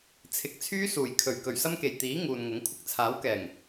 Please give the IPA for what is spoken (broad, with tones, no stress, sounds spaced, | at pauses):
t͡sʰ ɪ˨ k̚ t͡sʰ yː˥ s uː˨˩ j kʰ ɵ˨˩ ɥ k ɵ˨˩ ɥ s ɐ˥ m k e˨˩ j t̪ iː˨˥ ŋ uː˨ n ŋ ʊ˨˥ ŋ kʷʰ ɪ˧ k̚ t͡sʰ aː˨˥ w k ɛː˨˩ ŋ